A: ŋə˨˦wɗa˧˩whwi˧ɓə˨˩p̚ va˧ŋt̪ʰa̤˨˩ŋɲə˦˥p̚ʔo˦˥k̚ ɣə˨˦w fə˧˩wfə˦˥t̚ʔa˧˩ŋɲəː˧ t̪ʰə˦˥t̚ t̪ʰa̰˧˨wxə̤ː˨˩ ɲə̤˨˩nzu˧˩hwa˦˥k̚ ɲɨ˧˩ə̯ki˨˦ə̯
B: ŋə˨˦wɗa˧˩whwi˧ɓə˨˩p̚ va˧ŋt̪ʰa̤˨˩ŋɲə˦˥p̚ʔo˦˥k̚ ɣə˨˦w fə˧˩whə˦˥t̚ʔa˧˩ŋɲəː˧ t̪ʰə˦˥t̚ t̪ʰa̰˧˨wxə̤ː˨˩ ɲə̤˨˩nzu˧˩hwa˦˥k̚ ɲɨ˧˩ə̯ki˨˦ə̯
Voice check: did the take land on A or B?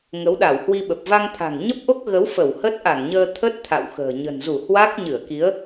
B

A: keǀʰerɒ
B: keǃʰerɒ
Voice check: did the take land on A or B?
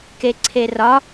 A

